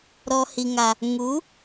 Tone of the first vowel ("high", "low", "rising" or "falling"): low